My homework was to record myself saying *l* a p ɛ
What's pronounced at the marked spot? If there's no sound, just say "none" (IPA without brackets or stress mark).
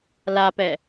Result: l